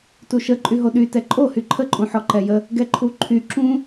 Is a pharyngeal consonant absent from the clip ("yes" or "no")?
no